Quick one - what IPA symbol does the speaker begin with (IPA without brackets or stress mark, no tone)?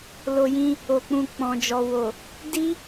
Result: l